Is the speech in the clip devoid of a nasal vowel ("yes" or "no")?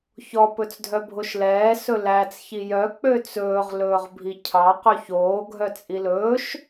yes